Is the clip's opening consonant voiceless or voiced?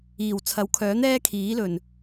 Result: voiced